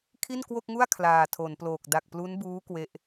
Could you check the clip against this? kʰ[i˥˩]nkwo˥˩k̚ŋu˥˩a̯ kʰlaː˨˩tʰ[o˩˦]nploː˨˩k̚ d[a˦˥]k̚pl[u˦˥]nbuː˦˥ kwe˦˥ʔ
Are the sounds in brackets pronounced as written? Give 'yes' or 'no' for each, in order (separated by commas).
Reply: yes, yes, no, yes